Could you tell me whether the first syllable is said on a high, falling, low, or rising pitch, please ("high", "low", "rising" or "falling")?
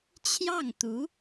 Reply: falling